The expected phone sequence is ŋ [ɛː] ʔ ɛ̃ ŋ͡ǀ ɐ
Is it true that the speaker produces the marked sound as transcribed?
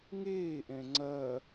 no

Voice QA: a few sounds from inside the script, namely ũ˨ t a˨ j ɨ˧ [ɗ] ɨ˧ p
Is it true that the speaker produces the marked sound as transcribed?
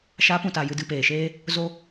no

